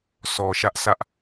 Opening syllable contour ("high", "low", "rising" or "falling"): low